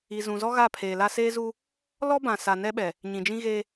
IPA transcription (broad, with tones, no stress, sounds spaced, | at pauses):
i˨ z ũ˨ z ɔ˦ ɣ a˦˨ pʰ eː˨ l a˦ s eː˦ z u˦ | l ɔ˦ b ã˨ s a˨ n ɛ˦ ɓ ɛ˨ | ɲ ĩ˨ d͡ʒ ĩ˦ ɣ eː˦